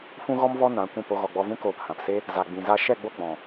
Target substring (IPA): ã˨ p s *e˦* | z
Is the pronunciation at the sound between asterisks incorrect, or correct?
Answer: correct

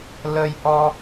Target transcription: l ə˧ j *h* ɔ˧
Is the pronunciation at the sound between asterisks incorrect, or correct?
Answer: incorrect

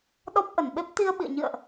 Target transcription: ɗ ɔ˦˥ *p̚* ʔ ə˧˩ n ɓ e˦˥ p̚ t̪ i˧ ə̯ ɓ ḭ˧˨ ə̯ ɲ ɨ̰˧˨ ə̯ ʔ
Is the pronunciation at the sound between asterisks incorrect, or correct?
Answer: correct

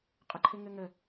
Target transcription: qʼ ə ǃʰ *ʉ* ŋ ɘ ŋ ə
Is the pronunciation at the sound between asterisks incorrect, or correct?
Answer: incorrect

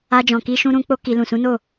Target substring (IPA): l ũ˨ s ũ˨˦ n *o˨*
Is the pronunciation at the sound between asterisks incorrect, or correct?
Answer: incorrect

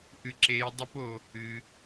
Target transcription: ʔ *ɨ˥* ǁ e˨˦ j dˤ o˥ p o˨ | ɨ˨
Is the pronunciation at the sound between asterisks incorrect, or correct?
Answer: incorrect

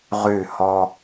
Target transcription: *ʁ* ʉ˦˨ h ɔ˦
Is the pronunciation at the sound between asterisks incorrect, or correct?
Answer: correct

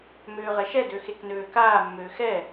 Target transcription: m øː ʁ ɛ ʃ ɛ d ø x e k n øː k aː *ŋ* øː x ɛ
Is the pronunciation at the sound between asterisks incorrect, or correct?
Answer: incorrect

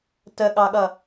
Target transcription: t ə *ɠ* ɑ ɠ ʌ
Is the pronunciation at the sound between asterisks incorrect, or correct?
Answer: correct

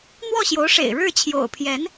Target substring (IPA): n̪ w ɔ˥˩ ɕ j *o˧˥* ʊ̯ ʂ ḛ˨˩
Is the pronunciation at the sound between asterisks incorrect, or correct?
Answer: correct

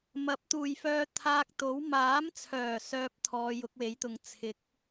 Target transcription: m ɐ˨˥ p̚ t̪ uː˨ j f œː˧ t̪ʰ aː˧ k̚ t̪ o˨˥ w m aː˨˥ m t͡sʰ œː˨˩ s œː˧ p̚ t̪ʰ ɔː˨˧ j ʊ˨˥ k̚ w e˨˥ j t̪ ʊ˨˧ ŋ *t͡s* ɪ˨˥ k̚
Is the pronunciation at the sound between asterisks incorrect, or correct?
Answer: incorrect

